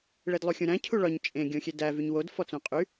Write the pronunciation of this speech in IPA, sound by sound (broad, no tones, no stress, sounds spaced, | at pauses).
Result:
ɭ e d lˠ u xʲ ũ ɾ æ̃ cʰ u ɭ ɒ ɲ t͡ʃʼ ẽ ɡʲ õ xʲ e d æ v y ɲ w o d f ɔ t͡s õ qʼ y